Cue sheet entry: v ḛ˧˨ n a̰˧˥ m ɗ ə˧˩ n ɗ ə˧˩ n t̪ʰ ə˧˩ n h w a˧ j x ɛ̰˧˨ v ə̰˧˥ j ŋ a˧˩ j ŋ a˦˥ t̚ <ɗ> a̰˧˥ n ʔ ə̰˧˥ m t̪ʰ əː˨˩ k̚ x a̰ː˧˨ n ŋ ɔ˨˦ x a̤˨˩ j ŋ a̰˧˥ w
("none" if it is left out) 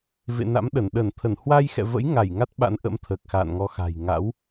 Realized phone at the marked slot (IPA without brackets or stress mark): ɓ